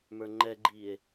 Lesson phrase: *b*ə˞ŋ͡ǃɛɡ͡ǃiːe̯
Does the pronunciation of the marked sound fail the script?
yes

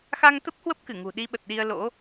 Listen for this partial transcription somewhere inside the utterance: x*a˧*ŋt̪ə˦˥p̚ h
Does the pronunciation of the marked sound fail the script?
no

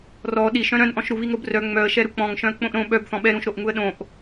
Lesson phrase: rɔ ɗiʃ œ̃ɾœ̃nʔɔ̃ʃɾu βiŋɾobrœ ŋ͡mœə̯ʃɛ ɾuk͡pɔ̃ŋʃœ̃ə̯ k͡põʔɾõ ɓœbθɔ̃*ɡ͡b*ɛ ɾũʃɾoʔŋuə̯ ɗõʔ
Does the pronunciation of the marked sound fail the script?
yes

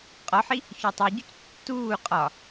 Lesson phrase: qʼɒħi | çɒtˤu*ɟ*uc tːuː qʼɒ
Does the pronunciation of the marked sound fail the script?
no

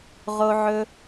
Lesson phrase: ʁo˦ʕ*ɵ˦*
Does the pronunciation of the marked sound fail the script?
no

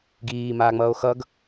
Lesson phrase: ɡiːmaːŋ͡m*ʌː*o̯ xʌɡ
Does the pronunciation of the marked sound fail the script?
no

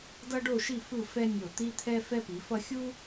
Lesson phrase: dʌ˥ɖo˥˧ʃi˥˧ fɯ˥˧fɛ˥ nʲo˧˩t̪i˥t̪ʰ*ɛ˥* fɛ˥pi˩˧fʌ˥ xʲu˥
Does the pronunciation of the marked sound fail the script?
no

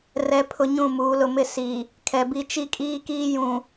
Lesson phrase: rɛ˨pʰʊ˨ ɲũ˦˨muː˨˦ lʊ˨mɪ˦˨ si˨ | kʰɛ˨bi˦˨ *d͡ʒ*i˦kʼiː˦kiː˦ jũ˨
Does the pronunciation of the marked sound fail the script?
yes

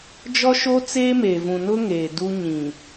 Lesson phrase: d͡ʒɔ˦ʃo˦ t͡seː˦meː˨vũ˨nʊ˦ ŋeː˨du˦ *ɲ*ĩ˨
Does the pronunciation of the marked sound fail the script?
no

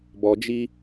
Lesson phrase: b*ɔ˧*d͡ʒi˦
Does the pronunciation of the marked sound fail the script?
no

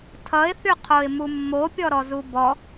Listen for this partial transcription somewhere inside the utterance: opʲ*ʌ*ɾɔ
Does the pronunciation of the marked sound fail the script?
yes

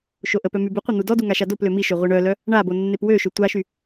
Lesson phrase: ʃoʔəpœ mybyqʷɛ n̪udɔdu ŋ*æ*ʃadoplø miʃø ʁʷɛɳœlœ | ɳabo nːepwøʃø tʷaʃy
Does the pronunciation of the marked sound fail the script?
yes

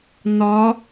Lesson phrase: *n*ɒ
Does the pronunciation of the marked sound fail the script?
no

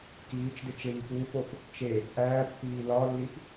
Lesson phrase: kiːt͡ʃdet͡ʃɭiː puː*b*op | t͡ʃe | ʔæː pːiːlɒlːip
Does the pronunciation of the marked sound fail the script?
yes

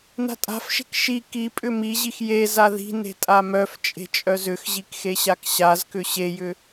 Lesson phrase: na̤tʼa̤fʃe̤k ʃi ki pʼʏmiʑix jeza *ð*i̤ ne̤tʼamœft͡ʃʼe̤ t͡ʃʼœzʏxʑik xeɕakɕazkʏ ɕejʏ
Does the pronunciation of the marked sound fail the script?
no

